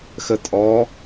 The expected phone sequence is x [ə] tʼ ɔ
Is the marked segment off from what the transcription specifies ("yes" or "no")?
no